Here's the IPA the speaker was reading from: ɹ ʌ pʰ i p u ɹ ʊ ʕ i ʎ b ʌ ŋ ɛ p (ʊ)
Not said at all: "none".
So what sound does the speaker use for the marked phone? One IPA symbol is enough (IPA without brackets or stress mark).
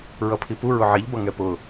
ʊ